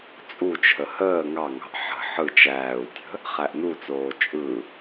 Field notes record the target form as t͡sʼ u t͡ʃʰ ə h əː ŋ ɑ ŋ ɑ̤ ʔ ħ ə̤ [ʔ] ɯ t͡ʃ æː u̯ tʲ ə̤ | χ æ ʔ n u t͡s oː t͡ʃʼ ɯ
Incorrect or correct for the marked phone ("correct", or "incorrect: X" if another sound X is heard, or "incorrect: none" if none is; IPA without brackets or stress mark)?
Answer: incorrect: ħ